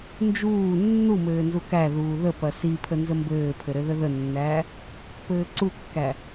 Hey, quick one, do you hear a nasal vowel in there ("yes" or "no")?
no